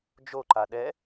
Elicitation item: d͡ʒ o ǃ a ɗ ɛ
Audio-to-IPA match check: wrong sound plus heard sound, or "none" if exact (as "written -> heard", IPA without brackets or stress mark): none